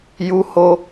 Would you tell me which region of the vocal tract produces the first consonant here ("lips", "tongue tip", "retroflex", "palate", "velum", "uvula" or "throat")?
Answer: palate